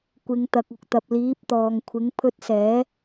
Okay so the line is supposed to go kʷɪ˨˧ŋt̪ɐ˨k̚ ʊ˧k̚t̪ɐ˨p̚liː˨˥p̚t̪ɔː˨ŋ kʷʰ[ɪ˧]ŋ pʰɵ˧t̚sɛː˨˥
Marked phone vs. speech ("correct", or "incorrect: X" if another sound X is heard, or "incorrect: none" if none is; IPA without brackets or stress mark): incorrect: ɪ˨˥